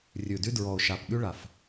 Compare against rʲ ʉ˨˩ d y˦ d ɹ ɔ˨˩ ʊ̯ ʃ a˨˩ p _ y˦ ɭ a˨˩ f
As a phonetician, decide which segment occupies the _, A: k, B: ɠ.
B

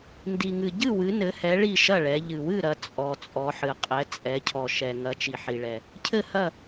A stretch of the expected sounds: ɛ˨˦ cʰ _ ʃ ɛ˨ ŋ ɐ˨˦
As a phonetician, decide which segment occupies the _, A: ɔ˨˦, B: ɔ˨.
B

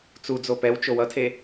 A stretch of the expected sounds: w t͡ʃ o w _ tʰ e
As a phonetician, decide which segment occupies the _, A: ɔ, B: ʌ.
B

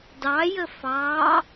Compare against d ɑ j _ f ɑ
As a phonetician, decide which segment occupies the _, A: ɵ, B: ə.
B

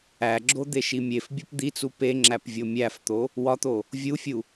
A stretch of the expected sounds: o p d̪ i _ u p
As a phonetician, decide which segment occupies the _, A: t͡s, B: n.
A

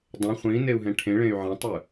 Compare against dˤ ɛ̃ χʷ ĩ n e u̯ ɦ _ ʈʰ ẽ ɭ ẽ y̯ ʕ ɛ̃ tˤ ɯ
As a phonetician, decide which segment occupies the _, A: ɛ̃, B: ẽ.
A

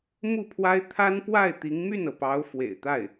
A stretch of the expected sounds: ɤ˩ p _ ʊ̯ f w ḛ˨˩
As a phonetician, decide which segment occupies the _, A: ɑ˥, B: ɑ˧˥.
B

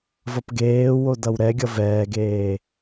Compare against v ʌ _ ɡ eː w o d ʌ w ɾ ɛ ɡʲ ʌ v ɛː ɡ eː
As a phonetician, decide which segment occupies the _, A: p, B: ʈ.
A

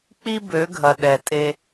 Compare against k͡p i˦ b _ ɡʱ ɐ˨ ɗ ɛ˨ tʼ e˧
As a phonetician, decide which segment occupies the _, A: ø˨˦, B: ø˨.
A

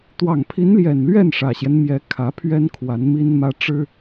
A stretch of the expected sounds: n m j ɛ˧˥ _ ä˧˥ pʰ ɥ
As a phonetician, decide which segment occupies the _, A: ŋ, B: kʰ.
B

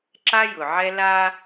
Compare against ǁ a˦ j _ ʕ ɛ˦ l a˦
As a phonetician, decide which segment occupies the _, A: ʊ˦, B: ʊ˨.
B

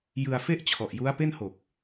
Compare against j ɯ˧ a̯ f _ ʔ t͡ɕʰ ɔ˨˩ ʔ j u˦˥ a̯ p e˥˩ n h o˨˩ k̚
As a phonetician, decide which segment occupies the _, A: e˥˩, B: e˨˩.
A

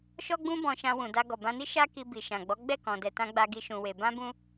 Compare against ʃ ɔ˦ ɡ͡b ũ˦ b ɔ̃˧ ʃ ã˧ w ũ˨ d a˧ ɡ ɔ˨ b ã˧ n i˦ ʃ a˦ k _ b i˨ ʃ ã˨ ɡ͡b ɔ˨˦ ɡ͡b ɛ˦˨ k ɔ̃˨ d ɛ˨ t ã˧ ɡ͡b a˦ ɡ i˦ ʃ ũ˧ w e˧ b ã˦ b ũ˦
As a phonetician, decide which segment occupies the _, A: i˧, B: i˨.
A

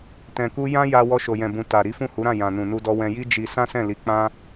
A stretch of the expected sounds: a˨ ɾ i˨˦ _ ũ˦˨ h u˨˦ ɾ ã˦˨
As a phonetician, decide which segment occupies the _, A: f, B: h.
A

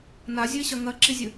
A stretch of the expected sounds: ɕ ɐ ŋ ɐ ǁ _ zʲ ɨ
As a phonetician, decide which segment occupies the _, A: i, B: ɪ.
A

